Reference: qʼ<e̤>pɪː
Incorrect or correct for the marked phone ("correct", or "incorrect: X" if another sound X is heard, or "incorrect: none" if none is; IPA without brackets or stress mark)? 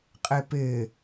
incorrect: e